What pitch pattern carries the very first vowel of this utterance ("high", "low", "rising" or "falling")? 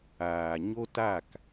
low